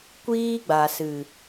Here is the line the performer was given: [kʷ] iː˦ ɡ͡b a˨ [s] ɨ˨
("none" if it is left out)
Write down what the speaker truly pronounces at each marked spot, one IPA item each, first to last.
kʷ, s

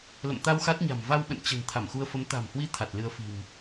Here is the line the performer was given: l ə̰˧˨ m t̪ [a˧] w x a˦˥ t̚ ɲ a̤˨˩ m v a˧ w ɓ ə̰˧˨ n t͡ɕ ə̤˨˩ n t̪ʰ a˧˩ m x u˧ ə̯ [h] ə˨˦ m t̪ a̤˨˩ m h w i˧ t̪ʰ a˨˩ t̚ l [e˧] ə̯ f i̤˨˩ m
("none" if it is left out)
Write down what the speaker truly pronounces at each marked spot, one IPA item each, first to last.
a˧, f, ɨ˧

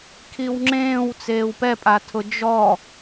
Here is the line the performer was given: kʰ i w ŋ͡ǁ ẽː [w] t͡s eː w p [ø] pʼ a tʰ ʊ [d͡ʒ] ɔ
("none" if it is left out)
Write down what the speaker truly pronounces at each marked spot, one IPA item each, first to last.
w, ɛ, d͡ʒ

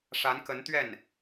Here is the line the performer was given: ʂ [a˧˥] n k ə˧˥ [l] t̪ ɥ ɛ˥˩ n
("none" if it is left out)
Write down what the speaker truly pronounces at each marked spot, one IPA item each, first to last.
a˧˥, n

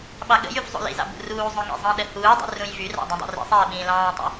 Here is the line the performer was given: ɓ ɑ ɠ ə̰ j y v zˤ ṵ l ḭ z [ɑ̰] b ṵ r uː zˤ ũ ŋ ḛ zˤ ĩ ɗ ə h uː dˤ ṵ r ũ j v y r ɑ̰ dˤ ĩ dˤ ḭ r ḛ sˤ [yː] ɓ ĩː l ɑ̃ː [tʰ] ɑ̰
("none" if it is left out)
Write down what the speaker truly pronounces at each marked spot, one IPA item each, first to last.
ɑ̰, eː, tˤ

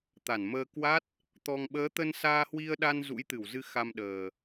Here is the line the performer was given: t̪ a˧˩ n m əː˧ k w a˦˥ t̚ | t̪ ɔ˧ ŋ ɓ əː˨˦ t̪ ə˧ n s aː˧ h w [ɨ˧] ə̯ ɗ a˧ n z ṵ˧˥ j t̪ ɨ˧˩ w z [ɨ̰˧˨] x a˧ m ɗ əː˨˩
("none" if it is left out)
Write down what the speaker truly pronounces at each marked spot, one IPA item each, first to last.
i˧, ɨ˧

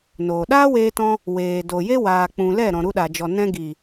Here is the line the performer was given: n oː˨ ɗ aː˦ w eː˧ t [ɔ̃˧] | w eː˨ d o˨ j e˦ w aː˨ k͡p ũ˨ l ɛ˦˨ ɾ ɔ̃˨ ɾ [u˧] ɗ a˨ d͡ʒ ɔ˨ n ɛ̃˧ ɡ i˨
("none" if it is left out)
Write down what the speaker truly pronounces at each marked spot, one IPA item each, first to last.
ɔ̃˧, u˧

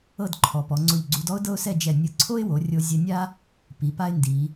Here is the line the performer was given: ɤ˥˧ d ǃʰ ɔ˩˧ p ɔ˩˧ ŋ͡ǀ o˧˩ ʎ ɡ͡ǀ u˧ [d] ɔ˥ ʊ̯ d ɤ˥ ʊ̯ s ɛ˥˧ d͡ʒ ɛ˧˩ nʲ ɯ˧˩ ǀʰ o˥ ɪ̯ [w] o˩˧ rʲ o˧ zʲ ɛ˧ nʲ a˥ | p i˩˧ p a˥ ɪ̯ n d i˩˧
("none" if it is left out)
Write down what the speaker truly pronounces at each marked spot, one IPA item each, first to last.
d, w

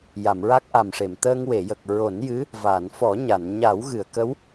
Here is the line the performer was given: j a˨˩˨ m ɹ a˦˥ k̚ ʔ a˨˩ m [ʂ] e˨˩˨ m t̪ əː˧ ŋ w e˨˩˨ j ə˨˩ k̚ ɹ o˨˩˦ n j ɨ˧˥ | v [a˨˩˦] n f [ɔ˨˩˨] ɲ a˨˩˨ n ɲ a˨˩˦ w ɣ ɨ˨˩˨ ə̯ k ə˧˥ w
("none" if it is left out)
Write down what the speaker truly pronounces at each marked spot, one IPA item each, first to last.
ʂ, a˨˩˨, ɔ˨˩˦

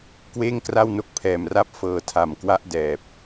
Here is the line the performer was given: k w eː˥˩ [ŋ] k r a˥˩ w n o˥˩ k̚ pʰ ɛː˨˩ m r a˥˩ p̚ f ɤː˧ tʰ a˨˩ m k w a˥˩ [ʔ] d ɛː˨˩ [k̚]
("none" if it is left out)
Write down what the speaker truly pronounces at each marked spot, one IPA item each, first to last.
ŋ, ʔ, p̚

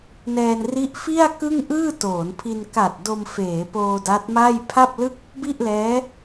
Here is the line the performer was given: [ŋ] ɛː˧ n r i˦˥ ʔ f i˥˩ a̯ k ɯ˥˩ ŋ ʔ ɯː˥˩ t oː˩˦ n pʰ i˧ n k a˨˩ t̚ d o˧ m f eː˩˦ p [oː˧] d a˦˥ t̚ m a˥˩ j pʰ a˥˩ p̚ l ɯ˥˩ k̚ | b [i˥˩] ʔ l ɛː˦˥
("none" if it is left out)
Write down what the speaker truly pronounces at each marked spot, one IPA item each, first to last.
n, oː˧, i˥˩

